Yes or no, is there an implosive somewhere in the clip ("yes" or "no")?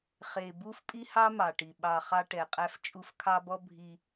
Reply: yes